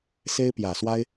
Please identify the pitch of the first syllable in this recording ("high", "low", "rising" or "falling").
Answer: high